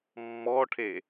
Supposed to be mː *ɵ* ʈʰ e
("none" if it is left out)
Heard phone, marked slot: ɔ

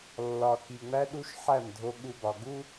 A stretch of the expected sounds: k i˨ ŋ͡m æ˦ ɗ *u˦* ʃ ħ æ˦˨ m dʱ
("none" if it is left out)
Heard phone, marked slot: u˦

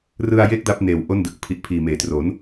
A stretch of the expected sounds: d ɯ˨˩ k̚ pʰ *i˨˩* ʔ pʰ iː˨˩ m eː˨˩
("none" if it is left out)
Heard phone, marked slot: i˨˩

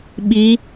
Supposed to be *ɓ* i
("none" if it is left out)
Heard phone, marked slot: ɓ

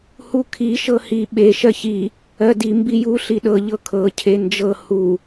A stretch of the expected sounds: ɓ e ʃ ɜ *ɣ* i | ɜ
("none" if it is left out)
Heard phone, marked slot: ç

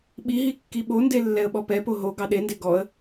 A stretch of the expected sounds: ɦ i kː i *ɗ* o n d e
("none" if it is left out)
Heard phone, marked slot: ɓ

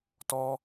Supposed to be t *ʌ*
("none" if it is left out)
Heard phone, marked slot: ɔ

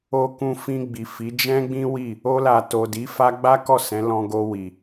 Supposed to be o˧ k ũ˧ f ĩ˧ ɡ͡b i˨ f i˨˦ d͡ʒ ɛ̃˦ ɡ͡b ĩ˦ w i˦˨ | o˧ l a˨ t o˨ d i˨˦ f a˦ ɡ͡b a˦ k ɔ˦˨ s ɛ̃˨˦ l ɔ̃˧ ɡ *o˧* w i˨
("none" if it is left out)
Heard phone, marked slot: o˧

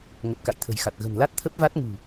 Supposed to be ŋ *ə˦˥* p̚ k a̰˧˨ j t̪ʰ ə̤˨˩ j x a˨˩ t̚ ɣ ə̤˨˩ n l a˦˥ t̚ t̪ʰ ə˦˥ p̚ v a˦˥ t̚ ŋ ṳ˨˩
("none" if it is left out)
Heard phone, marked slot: ə˨˩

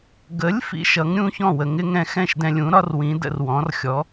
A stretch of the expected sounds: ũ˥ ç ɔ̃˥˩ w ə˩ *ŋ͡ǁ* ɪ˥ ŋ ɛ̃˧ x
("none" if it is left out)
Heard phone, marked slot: ŋ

